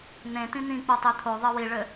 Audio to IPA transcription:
n̪ ẽ t ĩ n̪ ĩ k͡p o tˤ e t̪ʰ o ðˤ ɘ w i ɭ ɘ

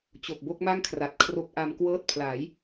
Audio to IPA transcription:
t͡ɕ o˨˩ k̚ b o˦˥ k̚ m a˥˩ ŋ kʰ r a˨˩ t̚ kʰ r o˦˥ k̚ ʔ a˧ m k w ɤː˦˥ t̚ pʰ l aː˩˦ j

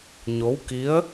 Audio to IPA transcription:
ɲ o˧˥ w k i˧˥ ə̯

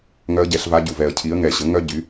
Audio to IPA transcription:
ŋ œ˧˥ ə̯ ɟ ɛ˩˧ ɬ v a˧˥ ɟ u˨˩ v ɛ˨˩ ə̯ cʰ i˩˥ ə̯ ŋ ɛ˨˩ ɕ ə˩˥ ŋ œ˥ ɟ y˩˥

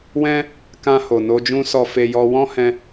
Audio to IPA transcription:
w ɛ̃˧ | k ã˧ h o˨ n o˧ d͡ʒ ũ˧ s ɔ˨ f e˨ j ɔ˧ w ɔ̃˦ h ɛ̃˧

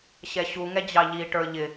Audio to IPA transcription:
ɕ ɛ ɕ u ŋ ɛ d͡ʑ ɑ ʎ i ʈ ə˞ ʎ ɪ

